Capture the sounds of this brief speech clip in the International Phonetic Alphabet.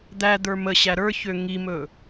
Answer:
d̪ æ d̪ ə˞ m ə ɕ æ ɾ ə˞ ç ø ŋ i m ɵ

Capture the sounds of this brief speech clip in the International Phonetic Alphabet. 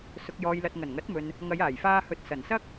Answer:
s ʊ˨ k̚ j ɔː˨ j l ɐ˨ t̚ ŋ ɐ˨˩ n ŋ ɐ˨˥ t̚ m ɵ˨ n | ŋ ɐ˨˧ j aː˨˩ j f aː˧ h ɵ˧ t̚ s ɐ˨˩ n s ɐ˥ k̚

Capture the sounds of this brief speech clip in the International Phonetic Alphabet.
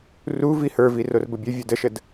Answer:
r u v i h ə˞ v i r o r b ə bʲ ə vʲ o d ə ʃ ə d

